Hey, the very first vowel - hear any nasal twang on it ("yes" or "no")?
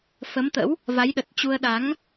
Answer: no